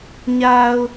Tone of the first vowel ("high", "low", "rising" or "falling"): low